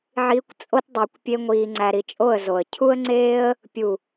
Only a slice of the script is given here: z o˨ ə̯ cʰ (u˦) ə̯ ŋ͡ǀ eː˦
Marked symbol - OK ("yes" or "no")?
yes